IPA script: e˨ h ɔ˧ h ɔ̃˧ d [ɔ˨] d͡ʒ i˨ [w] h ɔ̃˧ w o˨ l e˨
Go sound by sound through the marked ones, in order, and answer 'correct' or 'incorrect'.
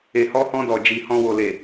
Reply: correct, incorrect: none

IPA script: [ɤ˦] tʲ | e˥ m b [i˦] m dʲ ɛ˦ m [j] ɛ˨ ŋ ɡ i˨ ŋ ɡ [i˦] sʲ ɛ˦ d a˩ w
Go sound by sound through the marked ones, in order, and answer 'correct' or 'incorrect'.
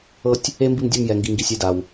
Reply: correct, correct, correct, incorrect: i˨

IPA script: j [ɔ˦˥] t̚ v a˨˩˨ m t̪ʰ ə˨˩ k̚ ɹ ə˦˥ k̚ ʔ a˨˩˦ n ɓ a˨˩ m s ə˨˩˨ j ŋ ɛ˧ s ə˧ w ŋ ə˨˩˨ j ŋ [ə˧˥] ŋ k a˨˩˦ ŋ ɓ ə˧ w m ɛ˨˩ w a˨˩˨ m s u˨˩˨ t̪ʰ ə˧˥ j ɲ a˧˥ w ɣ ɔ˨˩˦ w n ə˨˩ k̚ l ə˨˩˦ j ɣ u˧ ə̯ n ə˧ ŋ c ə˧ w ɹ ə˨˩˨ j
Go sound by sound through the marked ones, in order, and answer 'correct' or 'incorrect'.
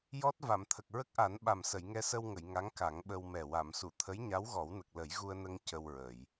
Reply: correct, incorrect: a˧˥

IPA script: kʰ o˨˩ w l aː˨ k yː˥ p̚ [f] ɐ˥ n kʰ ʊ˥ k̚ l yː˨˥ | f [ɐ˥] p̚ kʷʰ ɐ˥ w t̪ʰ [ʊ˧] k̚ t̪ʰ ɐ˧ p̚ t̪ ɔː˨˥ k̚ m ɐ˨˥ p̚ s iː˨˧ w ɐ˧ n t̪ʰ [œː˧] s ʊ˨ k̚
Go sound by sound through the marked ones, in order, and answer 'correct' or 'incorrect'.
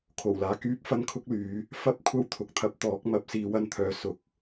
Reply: correct, correct, incorrect: ʊ˨˥, incorrect: œː˨˧

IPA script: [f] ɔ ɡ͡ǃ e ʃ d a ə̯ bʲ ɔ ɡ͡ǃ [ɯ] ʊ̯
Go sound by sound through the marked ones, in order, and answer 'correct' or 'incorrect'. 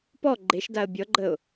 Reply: incorrect: p, incorrect: ə

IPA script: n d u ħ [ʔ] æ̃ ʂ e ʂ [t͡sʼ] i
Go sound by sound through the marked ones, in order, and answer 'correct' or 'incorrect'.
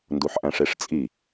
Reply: correct, correct

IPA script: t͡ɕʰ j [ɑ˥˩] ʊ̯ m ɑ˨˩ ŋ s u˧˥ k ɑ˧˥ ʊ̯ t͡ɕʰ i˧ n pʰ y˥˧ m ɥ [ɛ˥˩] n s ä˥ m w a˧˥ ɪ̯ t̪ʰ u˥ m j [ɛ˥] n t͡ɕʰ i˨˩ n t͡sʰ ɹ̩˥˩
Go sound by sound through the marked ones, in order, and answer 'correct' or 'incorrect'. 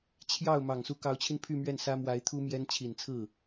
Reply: correct, correct, correct

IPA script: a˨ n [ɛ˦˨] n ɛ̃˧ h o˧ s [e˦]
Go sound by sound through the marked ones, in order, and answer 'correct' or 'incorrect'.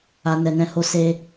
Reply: incorrect: ɛ˨, incorrect: e˧

